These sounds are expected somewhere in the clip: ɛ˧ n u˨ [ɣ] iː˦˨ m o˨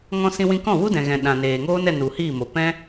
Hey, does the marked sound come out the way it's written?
no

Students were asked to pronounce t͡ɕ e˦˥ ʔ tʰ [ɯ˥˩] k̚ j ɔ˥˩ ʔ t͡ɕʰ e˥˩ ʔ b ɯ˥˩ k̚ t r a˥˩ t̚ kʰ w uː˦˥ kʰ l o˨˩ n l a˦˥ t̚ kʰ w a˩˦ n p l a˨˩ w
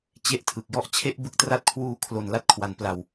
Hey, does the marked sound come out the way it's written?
no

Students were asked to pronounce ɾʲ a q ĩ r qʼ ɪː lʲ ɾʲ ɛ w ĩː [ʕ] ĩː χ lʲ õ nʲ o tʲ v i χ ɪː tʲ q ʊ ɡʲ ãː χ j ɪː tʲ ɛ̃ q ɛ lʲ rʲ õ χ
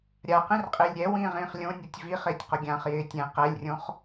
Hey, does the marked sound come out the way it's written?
no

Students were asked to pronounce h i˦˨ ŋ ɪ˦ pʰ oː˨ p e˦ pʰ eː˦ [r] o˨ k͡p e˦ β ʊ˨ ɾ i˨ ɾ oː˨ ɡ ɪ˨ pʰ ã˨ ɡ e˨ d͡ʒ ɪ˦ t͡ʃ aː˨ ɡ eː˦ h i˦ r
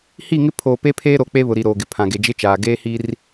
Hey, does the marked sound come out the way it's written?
no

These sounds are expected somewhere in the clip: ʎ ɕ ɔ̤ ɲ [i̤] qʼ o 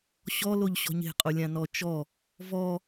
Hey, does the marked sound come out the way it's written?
no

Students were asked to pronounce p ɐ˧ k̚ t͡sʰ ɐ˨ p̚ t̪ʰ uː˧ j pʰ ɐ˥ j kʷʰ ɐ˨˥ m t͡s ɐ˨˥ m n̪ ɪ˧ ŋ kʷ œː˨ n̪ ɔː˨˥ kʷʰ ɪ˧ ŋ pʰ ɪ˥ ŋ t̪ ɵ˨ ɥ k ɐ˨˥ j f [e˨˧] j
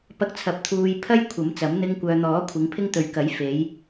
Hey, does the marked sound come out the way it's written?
yes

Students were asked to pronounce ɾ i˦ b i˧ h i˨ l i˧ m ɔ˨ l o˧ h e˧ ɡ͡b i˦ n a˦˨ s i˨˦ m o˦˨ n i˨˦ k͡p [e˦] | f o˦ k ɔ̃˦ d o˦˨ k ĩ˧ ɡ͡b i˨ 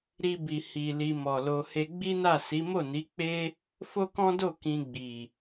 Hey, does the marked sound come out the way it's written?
yes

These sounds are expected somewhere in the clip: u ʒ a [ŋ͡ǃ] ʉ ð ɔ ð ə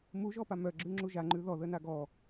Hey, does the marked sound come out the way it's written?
yes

